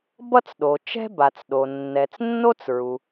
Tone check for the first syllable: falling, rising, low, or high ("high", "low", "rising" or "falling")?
high